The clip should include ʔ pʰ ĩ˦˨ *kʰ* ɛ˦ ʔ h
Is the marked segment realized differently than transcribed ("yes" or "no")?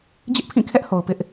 no